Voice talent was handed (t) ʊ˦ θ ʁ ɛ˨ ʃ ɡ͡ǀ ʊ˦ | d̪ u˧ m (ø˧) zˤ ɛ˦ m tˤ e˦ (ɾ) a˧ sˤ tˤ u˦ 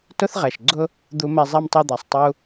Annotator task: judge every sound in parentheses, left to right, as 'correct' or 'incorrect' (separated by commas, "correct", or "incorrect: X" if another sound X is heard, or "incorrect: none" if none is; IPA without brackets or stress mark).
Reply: correct, incorrect: ɛ˧, incorrect: d̪